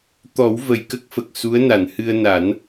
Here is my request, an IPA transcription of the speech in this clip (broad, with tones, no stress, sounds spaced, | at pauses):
t̪ ɔ˨˩˦ w v ə˨˩ j k ə˦˥ k̚ f ə˨˩ k̚ s u˧˥ ə̯ n a˨˩˨ n h ɨ˧ ə̯ n a˨˩˦ n